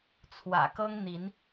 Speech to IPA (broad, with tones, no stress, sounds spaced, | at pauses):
t͡sʰ w ä̰˨˩ k ɤ˦ ŋ n̪ i˨˦ n